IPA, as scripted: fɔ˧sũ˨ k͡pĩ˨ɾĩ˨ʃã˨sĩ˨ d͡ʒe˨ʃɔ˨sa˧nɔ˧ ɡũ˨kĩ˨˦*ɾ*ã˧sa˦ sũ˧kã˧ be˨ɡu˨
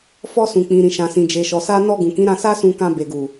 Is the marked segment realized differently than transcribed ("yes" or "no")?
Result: no